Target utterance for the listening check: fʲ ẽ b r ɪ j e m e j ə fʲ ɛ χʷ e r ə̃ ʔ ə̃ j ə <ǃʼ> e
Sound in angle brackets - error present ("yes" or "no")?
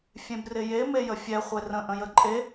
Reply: no